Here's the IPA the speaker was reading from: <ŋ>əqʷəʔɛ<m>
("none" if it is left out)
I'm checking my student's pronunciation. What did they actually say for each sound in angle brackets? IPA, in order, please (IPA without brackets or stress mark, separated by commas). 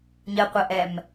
ɲ, m